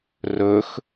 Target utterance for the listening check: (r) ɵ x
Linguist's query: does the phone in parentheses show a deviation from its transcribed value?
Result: no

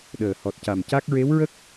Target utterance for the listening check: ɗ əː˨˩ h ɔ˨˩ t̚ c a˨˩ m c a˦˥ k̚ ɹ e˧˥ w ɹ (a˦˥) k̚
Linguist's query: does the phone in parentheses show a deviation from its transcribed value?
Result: yes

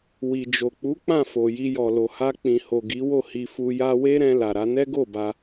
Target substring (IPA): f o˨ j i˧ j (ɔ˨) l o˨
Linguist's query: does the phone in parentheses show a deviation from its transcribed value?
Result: no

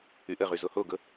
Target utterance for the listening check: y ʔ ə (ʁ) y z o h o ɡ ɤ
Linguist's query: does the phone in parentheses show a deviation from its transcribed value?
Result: no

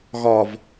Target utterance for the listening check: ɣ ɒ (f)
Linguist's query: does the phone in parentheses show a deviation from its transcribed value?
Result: yes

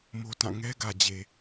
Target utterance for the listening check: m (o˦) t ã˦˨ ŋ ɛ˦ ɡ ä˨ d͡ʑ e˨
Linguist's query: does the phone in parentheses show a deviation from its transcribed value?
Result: no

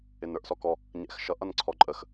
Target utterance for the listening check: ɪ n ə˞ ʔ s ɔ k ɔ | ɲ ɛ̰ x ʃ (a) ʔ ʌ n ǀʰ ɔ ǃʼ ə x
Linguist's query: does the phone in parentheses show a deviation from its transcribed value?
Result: yes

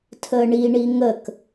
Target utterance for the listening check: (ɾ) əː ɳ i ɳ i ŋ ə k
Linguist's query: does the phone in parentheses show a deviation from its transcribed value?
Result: yes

